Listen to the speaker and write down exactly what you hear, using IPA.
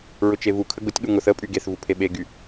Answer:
ɹ ʊ t͡ʃ e v u kʰ ə ɡ ʊ tʲ ɠ u ŋ ʊ θ ə pʼ y ɡ e θ v u pʰ e ɓ e ɡ y

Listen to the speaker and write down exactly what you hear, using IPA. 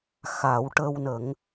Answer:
x a˨˩˦ w ʈ ə˧ w n ə˨˩˦ ŋ

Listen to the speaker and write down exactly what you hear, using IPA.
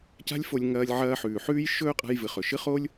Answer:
c a̤˦ lʲ f o˧ lʲ ŋ ɐː˧ lʲ ʕ ɐː˧ ħ ʉː˨ ħ ʉː˦ j ʃ ɵː˦ qʼ a̤˧ j v ɨ˨ χ ɵ˨ ʃ ɨ˦ χ o˦ lʲ

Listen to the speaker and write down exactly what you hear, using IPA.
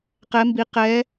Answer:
q ɛ˨˦ m b i˨˦ q ɛ˨˦

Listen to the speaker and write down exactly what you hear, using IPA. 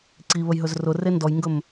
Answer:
ǀ i β ə j ɦ ɵ z r ʊ r e n d ɔ j ŋ ɡ ɵ m

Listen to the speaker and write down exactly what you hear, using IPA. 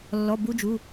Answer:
lː ɔ˩˧˩ b u˧ d͡ʒ u˩˧˩

